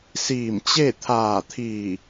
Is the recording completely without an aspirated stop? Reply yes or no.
no